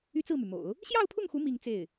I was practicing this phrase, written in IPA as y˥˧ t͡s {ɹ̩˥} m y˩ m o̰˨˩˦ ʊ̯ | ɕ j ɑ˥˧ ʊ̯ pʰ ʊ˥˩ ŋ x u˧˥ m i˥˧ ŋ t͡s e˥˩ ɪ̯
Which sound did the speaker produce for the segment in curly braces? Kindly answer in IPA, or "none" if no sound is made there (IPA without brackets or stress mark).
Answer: ɹ̩˥˩